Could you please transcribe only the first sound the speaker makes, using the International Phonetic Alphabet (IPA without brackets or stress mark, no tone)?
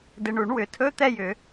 d